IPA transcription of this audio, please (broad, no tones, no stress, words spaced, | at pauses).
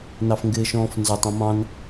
nɑfŋɡɪːʃɔ̃ːfnzɒtˤ ɑ̃mɑ̃n